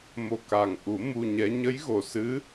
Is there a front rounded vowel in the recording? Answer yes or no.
no